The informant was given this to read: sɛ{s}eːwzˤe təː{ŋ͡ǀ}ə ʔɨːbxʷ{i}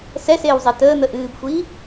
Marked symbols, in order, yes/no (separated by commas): yes, no, no